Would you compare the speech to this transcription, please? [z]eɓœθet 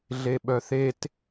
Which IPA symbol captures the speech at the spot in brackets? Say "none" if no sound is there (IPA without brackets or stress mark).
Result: ɮ